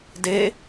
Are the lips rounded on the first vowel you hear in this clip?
no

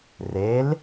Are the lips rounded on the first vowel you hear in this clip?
no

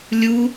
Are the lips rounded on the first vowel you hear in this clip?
yes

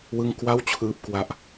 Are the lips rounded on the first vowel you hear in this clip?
no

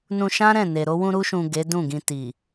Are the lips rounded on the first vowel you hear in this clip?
yes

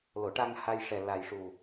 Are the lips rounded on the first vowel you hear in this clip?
yes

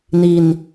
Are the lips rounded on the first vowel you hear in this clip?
no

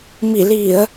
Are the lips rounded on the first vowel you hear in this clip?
no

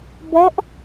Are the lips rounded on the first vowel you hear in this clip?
yes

